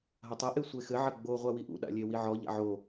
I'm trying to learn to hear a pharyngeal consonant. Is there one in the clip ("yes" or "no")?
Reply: yes